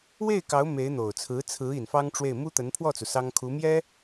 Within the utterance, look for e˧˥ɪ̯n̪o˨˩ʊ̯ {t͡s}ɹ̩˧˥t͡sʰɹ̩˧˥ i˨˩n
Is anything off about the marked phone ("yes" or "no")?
yes